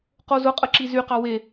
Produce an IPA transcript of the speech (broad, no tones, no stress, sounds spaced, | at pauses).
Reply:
q o z ʊ qʼ ə ǁ i z y q ɑ w e